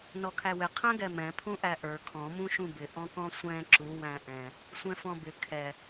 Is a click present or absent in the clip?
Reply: present